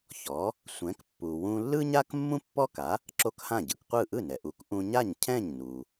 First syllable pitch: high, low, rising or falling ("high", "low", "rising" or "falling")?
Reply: rising